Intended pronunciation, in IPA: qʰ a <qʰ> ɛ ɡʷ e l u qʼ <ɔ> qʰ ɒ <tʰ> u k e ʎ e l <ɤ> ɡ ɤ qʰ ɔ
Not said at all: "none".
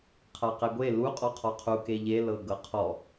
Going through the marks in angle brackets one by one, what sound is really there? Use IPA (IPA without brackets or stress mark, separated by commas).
q, ɔ, qʰ, ɤ